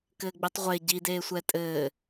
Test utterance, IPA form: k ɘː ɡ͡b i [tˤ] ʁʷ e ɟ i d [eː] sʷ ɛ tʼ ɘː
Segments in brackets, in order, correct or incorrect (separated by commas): correct, correct